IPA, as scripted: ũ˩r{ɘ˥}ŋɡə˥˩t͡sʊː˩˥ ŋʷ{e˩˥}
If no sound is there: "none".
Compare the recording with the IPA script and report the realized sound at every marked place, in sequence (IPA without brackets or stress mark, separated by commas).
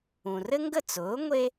ɘ˥, e˥